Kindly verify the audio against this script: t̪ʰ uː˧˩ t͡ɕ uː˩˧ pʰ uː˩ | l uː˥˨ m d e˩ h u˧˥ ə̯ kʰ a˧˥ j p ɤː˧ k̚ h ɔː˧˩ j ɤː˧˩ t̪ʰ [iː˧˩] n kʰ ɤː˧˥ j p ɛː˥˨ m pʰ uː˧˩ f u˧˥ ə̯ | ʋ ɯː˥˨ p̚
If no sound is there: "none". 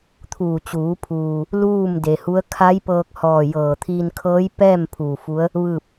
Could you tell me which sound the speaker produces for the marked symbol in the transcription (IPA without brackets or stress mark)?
iː˧